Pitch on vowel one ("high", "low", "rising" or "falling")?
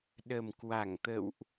low